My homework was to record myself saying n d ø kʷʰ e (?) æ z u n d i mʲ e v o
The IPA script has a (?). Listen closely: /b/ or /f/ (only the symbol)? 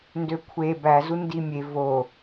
b